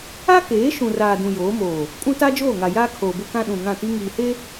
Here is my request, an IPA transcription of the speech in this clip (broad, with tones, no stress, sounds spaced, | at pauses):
a˦ k eː˨˦ ʃ ũ˨ r aː˨ d ũ˨ j oː˨˦ m oː˨ | kʼ ũ˦ t a˦ d͡ʒ oː˦˨ ŋ a˨ j aː˦ kʰ oː˨ b ʊ˦ k ã˦ ɗ ũ˨ ŋ ã˦˨ t i˦ ŋ iː˨ h e˦